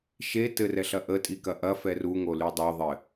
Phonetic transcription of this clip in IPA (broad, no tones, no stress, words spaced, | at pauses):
ʃe tɘrɛɬɐ ʔətʼikɐ ʔɐfɛ ruŋoly dˤoðˤɘ